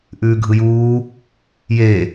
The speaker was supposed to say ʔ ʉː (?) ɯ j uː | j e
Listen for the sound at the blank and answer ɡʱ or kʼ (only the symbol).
ɡʱ